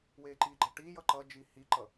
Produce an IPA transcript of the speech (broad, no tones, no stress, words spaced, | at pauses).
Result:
weːǃiɡ͡ǃɐ ʈijʌ ǃʌd͡ʒi hiǃʌ